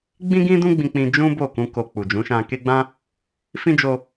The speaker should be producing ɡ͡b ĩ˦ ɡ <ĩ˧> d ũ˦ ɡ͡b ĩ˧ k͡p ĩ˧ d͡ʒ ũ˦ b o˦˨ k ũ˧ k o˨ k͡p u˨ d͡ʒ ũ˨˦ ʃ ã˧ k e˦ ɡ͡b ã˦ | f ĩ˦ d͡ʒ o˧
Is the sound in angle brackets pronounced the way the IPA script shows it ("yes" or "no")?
no